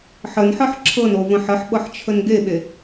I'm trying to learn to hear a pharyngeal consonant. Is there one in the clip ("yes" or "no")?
yes